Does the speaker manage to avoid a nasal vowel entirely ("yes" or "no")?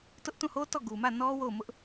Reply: no